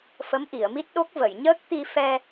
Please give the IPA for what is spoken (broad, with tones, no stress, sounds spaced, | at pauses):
f ə˧˥ m ʔ i˨˩˨ ə̯ m i˦˥ t̚ ɗ o˦˥ k̚ v ə˨˩˨ j ɲ əː˦˥ k̚ t̪ i˧ f ɛ˧